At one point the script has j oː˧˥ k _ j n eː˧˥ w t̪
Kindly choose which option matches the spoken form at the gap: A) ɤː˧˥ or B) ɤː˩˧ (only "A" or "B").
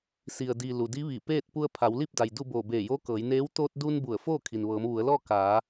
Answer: B